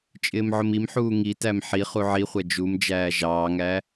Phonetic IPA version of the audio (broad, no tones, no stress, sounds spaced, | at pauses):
t͡ʃʼ ɪː m ʕ ʊ m i m ħ uː ŋ i t æ m ħ i χ u ʕ i χʷ ɛ d͡ʒ u m d͡ʒ æː ʒ ɑː ŋ æ